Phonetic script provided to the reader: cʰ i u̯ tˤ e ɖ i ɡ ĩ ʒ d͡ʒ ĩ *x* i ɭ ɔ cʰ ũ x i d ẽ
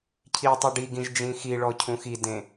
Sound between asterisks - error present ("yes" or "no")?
no